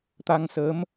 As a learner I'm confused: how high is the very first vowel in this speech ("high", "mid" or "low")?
low